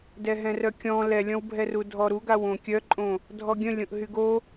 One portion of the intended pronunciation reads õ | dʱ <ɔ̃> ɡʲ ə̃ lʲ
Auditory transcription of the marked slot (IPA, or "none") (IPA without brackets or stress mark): ɔ